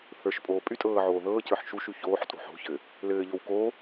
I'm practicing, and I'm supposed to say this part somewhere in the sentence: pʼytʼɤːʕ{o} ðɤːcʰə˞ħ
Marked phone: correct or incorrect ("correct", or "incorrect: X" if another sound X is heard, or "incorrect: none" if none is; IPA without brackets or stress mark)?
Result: incorrect: oː